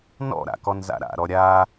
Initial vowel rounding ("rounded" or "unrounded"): rounded